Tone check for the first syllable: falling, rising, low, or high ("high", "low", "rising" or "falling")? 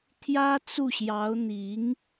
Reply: high